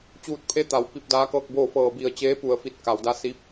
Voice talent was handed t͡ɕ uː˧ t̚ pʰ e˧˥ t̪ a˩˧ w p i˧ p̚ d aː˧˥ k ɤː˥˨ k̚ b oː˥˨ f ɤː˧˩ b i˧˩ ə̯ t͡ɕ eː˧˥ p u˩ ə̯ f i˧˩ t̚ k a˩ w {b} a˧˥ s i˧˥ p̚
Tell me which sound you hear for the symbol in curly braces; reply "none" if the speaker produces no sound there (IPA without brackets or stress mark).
d